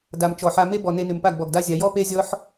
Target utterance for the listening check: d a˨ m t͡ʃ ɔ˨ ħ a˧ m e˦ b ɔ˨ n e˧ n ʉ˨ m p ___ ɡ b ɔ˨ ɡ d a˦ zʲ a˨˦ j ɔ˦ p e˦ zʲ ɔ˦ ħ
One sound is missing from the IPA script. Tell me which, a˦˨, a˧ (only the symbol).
a˦˨